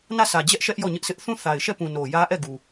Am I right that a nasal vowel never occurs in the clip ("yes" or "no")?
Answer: no